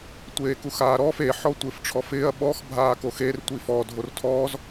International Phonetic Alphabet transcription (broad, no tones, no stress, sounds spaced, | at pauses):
tʷ eː k u x aː ɾ ɔː f e ħ ɔ tʷ ɪː f ʈ͡ʂʰ ɔ f ɪː ɐ̯ ɓ ɔ x bʱ aː k o x e r tʷ i f ɔ dʱ o r tʰ ɔː z